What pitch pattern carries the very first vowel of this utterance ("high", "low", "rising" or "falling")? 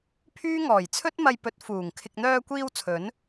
high